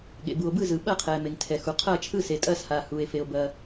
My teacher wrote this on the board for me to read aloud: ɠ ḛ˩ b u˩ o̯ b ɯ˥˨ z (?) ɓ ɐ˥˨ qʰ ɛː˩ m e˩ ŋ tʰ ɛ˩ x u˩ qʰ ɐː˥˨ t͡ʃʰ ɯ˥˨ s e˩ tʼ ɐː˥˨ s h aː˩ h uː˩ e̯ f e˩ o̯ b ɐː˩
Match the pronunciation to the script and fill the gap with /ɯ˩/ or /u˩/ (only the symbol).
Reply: ɯ˩